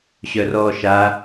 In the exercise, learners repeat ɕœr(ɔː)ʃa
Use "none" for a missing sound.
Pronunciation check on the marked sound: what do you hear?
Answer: ɔː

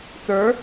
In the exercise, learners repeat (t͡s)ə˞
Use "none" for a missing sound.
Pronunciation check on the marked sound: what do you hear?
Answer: t͡s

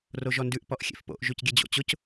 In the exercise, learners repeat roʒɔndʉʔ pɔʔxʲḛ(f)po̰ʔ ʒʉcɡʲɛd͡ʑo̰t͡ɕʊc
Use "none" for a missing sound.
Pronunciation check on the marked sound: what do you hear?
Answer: f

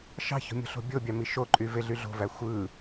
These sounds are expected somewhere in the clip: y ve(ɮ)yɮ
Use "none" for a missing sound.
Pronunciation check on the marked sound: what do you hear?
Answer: ɮ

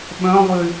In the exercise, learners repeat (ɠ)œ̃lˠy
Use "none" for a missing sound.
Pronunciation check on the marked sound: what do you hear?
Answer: ɓ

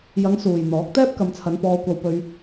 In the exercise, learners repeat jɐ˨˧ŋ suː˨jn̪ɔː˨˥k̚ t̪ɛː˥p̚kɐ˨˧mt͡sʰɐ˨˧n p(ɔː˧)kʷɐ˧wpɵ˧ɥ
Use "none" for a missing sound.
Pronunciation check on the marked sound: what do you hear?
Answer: ɔː˧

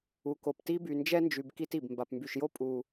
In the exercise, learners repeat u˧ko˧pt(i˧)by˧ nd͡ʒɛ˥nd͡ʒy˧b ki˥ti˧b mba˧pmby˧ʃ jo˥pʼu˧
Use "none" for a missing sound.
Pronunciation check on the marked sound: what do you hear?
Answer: i˥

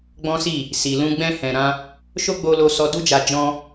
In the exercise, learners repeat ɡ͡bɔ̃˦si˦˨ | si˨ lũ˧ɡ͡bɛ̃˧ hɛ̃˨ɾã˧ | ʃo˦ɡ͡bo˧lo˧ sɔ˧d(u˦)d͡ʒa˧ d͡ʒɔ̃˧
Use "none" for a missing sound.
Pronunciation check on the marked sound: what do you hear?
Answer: u˦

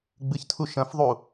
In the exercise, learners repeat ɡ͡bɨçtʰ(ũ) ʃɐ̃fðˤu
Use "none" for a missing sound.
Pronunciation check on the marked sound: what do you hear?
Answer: u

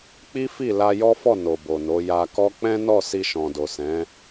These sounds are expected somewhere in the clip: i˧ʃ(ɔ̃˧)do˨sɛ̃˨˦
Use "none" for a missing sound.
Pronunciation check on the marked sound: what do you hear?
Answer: ɔ̃˨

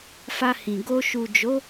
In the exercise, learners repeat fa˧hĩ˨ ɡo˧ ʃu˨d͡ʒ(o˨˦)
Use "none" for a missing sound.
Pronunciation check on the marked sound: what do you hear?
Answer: o˨˦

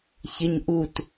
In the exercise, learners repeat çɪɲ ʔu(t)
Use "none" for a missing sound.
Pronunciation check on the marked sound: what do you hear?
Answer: t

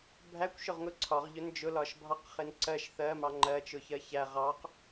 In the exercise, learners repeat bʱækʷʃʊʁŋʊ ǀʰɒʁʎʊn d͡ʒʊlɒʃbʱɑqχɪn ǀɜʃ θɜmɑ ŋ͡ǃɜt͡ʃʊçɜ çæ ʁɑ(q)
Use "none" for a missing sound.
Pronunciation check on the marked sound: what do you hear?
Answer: q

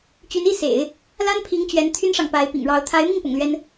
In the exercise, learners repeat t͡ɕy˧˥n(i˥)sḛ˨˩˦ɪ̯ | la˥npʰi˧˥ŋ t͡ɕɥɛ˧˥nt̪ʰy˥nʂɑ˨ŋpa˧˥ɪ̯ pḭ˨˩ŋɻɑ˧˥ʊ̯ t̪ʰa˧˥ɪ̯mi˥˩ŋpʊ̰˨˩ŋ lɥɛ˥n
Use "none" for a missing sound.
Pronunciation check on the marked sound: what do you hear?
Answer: i˥˩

